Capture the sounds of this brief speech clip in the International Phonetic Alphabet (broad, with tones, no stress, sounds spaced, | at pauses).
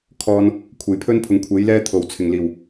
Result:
kʰ ɔː˨ n | kʷʰ e˨˩ j pʰ ɵ˥ n pʰ ʊ˨˥ ŋ kʷʰ e˨˥ j l ɛː˥ t̪ʰ o˨˩ w t͡sʰ ɪ˨˩ ŋ l iː˨˩ w